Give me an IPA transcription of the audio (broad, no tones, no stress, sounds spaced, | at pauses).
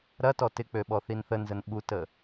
ɾ ɐ t ɔ t ɪ k͡p ø ɓ ɔ θ i n θ ə n z ə n ɓ u t ə